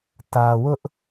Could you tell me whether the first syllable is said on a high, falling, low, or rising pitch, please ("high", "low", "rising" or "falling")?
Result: low